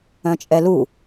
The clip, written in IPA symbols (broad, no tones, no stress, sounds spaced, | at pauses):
œ̃ t͡ʃʼ ɛ l u